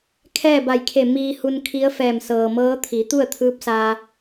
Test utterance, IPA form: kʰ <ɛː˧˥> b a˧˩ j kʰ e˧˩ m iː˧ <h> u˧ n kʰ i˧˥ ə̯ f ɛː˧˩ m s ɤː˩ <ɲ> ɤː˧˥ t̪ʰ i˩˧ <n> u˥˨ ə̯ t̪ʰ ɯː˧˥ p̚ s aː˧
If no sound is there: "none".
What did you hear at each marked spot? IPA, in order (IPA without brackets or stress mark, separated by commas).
ɛː˥˨, h, m, t̪